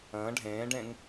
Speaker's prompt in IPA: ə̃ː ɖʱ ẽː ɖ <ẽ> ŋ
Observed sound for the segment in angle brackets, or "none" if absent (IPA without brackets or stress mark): ẽ